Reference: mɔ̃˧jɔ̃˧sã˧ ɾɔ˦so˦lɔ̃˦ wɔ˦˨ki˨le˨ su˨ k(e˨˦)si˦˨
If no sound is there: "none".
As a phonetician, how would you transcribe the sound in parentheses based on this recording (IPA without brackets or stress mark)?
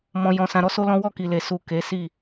e˨˦